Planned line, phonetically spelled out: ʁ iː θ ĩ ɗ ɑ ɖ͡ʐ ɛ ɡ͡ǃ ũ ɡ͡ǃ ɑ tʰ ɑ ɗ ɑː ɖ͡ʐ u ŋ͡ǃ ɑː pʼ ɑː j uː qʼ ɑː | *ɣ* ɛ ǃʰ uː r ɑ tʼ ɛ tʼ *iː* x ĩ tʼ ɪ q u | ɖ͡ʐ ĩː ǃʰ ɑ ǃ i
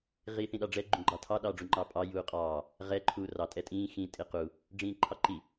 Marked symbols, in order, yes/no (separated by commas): no, no